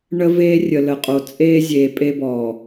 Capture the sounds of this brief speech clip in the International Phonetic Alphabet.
ɳ ə˦ v eː˦ rʲ ə˨ l ə˨ qʼ o˨ t͡sʼ eː˦ zʲ eː˨ pʼ e˦ b ɔː˨

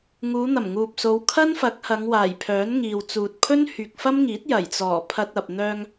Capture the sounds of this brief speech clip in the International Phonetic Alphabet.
ŋ uː˨˧ n̪ ɐ˨˩ m ŋ uː˨ p̚ s o˨˧ w kʰ ɐ˥ n f ɐ˨˥ k̚ h ɐ˨˧ ŋ w aː˨˩ j pʰ œː˨˥ n ŋ iː˨ w t͡s uː˨ t̚ pʰ ɵ˥ n h yː˨ k̚ f ɐ˥ m ŋ iː˨˥ t̚ j ɐ˨˩ j t͡s ɔː˨˩ pʰ ɐ˧ t̚ ɐ˨ p̚ n̪ œː˧ ŋ

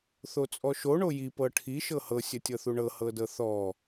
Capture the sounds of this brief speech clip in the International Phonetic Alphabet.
θ o t͡sʼ ɔ ʃ o ɳ o j i p ɤ ʈʰ i ʃ ɤ h ɤ sʲ ə tʲ ɤ θ u ɳ ɤ h ɤ d ɤ θ ɔ

